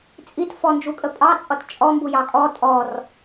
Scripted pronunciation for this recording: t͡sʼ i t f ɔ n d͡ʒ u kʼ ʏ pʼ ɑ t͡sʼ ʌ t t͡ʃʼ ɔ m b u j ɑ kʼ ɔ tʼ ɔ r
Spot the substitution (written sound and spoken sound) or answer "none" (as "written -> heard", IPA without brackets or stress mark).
ʏ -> ə